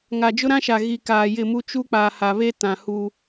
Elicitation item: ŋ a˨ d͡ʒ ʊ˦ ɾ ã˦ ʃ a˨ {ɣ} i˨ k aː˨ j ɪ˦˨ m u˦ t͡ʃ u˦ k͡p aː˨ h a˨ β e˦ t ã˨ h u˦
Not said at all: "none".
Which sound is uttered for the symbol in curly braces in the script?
ɣ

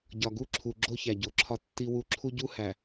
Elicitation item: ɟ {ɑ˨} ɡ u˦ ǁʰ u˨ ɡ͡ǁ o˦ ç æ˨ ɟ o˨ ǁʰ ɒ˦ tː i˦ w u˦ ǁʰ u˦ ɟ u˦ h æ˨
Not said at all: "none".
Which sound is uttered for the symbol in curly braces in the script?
ɒ˨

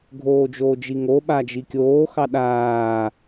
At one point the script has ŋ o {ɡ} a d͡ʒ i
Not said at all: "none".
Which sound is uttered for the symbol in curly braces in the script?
ɓ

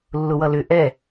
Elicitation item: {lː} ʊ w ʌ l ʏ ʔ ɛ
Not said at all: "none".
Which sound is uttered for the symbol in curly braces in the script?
lː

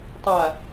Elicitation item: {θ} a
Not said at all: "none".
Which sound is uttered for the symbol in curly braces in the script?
tˤ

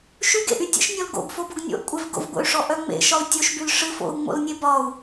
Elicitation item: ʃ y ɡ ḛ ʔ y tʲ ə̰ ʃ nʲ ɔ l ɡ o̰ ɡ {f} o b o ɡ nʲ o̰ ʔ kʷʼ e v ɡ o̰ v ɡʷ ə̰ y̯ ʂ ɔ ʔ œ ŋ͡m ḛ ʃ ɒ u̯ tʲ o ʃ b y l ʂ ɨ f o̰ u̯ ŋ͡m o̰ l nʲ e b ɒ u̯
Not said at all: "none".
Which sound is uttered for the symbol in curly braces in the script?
f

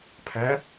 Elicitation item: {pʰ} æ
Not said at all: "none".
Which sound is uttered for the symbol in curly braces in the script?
pʰ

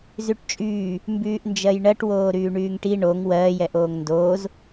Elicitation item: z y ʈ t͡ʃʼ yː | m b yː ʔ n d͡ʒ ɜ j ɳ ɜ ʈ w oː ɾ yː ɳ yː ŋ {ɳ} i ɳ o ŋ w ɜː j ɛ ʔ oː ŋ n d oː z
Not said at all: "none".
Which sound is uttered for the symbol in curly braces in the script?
ʈ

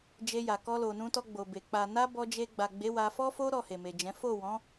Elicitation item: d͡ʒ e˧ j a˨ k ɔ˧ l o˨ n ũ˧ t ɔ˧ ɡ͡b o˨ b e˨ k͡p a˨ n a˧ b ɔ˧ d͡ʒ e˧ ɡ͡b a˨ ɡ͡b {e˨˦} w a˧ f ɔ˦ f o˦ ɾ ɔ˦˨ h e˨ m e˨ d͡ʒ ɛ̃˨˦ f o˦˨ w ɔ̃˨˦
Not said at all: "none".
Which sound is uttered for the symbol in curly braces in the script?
e˨˦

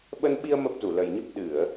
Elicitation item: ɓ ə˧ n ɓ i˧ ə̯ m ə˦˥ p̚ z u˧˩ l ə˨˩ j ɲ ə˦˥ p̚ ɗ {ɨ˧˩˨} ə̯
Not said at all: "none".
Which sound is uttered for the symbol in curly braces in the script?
ɨ˧˩˨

